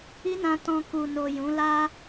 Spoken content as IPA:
i˦ n ã˧ t ɔ̃˧ k u˨ n o˨ j ũ˨˦ l a˦

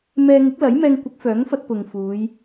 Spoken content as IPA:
m ɛː˧ ŋ ɪ˨˥ k̚ l ɐ˨˥ j m ɛː˧ ŋ kʷ ɪ˨˥ k̚ f œː˨˥ ŋ f ɐ˧ t̚ p ʊ˨ ŋ f uː˨˧ j

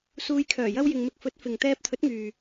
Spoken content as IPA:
s uː˧ j kʰ œː˨˩ j ɐ˧ w j ɪ˨ ŋ m ɪ˧ k̚ f ɵ˨˥ t̚ f ɪ˨ ŋ t̪ ɛː˧ p̚ t̪ʰ ɵ˨˥ t̚ ŋ yː˨

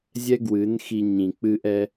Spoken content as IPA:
zʲ ɛ˦ ɡ w ɨ˨˦ n x i˧ ɲ ĩ˨ k͡p ɨ˧ ʔ ɛ˧

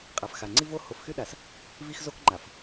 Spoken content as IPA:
qʼ a˨ f x a˨ ŋ͡ǀ i˦ v o˦ h o˨ f x y˦ ɗ a˨ s | v i˦ x z o˦ k ŋ͡ǃ a˨ f

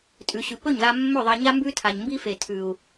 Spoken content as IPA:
tʼ ʉ˧ ɕ ʉ˧ p ɵ˦˨ ɲ ð a˧ mː ɵ˦˨ ðˤ a˧ ɲ a˦ m b ʉ˦ tʰ a˨ ɲ m b i˦ f e˨ tʰ ʉ˨ u̯

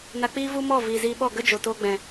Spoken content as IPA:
n a˧ k͡p iː˦ v u˦ m ɔ˦˨ v iː˨ z iː˧ ɓ ɔ˦˨ ɡ ə˦ d͡ʒ o˨ t oː˧ ɡ͡b ɛ̃˨

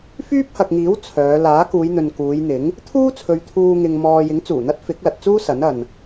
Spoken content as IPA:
f yː˥ p̚ h ɐ˨ k̚ ŋ iː˨˥ w t͡sʰ œː˨˧ l aː˨˥ k uː˨˧ j n̪ ɵ˨ n k uː˨˧ j n̪ ɪ˨˥ ŋ | t̪ʰ uː˥ t͡sʰ ɵ˨ ɥ t̪ʰ uː˧ ŋ ɪ˧ ŋ m ɔː˧ j ɪ˨˥ ŋ t͡s uː˨˩ n̪ ɐ˥ t̚ f ɪ˨˥ k̚ l ɐ˨ t̚ t͡s uː˥ s ɐ˨˥ n ɐ˨ n

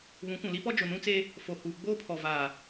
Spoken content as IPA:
β ũ˨˦ kʷ ũ˨ l i˦ p ɔ˦ d͡ʒ ʊ˨ n ũ˦ t͡s e˦ | f o˨ h uː˨ ɡ͡b oː˦ pʰ ɔ˨ v aː˨

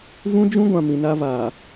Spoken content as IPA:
v ũ˦ d͡ʒ ũ˦ ɡʷ ã˨ m ĩ˨ n a˦ v aː˨

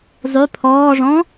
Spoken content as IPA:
zˤ y pʰ ɔː ʐ ɔ̃

